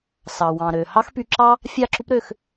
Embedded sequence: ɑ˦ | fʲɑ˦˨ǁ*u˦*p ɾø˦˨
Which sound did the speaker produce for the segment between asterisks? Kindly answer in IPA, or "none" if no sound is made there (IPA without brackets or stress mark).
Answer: u˦